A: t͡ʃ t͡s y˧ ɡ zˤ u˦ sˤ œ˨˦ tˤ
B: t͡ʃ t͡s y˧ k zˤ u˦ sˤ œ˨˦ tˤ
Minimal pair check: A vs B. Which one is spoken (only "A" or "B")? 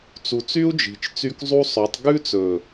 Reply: B